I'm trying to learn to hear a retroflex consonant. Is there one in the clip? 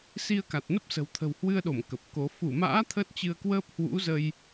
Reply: no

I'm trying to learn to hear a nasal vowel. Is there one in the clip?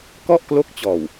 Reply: no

